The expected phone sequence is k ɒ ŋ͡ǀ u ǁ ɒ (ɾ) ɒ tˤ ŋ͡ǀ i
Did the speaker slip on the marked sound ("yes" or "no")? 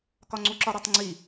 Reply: no